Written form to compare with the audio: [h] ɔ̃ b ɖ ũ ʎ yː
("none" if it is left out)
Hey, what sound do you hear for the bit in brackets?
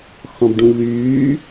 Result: x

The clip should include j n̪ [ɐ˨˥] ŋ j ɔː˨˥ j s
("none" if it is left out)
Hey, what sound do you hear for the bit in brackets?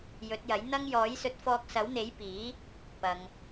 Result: ɐ˧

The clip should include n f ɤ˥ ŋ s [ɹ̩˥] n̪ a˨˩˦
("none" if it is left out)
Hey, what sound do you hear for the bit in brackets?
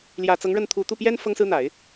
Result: ɹ̩˥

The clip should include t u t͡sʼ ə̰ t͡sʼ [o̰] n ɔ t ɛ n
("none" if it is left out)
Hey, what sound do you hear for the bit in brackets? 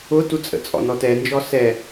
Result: ɔ̰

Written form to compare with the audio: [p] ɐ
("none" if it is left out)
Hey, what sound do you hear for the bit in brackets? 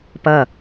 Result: p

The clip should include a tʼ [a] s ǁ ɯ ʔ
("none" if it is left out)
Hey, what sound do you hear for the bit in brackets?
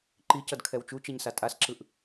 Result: a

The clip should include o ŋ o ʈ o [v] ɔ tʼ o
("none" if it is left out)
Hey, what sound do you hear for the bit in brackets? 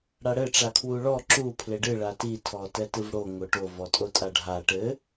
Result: v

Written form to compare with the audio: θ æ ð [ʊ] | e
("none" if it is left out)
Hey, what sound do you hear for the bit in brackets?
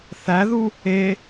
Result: u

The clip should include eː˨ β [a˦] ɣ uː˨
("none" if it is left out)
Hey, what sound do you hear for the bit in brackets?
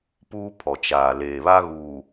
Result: a˦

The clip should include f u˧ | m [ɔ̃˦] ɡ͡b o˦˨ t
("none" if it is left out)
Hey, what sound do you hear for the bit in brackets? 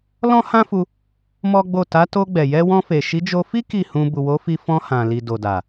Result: ɔ˦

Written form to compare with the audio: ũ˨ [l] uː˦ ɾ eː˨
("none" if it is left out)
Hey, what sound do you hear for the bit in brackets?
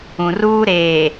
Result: r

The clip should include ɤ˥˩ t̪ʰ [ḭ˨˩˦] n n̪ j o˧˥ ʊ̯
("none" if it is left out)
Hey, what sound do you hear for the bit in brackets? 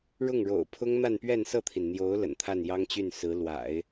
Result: i˩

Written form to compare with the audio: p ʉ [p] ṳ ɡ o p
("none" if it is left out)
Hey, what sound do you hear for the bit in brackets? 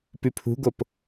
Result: pʰ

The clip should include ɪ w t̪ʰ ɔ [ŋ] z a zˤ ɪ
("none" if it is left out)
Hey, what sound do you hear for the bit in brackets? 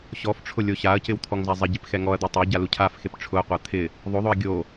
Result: ŋ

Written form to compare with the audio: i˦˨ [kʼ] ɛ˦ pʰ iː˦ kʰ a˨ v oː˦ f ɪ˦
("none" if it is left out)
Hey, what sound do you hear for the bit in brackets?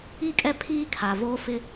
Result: kʼ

